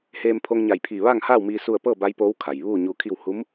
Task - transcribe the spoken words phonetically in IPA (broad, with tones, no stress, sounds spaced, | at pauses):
h eː˧ m pʰ o˧ ŋ ɲ a˧˩ j pʰ iː˧˩ ʋ a˥˨ ŋ h aː˥˨ w m iː˧ s u˥˨ ə̯ p ɤː˥˨ b a˧˥ j p oː˧˥ w kʰ a˩ j ʋ uː˥˨ ɲ uː˧ kʰ i˥˨ w h u˧˥ m